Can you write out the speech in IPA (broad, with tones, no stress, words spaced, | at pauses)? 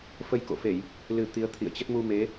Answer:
fə˧jko̰˧˨fe˧˩˨j | lɨ˨˩ t̪i˨˦ə̯t̪ʰḭ˧˨ə̯t͡ɕə˦˥t̚ mu˧me˨˦